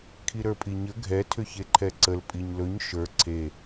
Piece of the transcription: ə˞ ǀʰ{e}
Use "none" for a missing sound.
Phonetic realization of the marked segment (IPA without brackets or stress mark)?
e